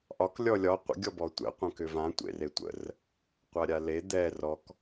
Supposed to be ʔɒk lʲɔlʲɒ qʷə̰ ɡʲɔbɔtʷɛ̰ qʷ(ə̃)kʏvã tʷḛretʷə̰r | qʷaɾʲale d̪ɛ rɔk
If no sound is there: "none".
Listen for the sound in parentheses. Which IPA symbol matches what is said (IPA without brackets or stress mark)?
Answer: ə̃